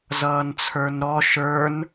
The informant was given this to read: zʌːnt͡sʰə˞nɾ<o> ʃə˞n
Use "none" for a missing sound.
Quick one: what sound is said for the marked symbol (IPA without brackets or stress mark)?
ɔ